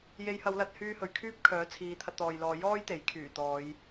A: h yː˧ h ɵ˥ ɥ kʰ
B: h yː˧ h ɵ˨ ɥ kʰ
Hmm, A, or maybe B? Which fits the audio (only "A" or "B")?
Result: B